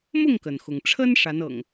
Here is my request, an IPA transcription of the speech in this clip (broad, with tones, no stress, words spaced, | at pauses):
mʊ˥˨ŋkə˩nxʊ˩ŋʈ͡ʂʰə˦n ʂa˨˦nɤ̰˨˩ŋ